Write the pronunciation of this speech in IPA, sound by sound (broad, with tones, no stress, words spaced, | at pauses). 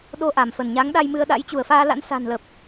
ɗo˧ʔa˧˩m fə˧˩nɲa˨˦ŋ ɗa˧jmɨ˧ə̯ɗa̰˧˥j t͡ɕu˧˩ə̯faː˧la̰˧˥n sa̤˨˩nlə˨˩p̚